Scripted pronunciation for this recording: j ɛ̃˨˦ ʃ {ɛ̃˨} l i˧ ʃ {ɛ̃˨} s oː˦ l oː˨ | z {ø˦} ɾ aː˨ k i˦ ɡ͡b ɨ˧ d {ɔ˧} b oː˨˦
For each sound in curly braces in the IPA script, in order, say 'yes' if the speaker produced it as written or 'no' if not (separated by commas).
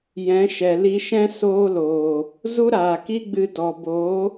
no, no, no, no